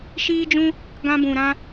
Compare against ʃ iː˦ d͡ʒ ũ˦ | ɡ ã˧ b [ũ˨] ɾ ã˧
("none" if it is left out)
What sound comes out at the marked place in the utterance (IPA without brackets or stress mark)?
ũ˨